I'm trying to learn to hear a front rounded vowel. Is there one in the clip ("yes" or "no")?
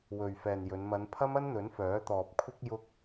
yes